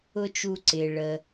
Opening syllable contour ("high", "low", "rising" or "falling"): high